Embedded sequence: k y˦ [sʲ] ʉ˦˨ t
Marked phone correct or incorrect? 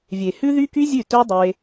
incorrect